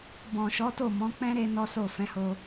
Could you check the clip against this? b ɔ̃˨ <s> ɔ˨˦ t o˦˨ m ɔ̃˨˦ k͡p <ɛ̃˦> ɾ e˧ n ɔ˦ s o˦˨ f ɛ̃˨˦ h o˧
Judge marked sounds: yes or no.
no, yes

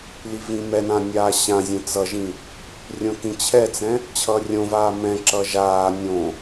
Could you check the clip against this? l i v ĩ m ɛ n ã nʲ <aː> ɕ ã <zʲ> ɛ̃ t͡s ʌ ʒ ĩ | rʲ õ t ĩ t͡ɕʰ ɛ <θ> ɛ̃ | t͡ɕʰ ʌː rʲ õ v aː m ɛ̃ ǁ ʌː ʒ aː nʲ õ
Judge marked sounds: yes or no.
yes, yes, no

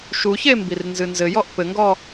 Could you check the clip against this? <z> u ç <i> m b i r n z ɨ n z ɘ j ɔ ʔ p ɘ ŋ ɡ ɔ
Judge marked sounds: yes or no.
no, no

